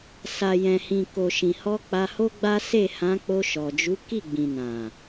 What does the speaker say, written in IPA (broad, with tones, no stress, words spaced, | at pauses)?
sa˨jɛ̃˨hĩ˨ ko˨ʃĩ˨ hɔ˧ k͡pa˧ho˦ɡ͡ba˦ se˦˨hã˨˦ k͡po˧ʃɔ˨d͡ʒu˨˦ ki˦˨ɡ͡bĩ˨nã˨